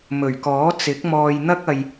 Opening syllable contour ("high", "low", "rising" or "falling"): low